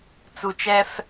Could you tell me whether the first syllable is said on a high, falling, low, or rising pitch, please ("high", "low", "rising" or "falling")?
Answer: low